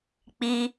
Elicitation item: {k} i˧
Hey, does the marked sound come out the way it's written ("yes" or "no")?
no